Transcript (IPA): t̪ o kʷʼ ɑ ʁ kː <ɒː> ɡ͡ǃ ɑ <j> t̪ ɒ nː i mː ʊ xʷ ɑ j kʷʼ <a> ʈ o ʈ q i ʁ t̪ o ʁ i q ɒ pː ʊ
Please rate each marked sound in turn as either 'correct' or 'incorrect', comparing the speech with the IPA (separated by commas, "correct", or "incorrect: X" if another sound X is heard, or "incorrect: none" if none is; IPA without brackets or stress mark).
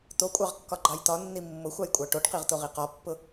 incorrect: ɒ, correct, incorrect: ɑ